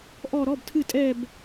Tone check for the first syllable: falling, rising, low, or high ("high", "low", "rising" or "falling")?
falling